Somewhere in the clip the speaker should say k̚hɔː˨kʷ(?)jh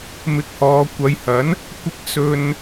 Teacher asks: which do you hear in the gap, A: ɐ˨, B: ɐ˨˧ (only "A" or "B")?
B